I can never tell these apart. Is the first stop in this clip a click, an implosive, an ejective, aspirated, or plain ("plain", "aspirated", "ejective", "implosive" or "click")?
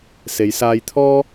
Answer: aspirated